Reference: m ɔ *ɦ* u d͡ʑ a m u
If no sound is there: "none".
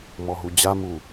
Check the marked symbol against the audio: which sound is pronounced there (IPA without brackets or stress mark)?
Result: ɦ